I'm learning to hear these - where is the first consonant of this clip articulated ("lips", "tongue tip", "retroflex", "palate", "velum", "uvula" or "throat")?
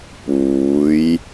lips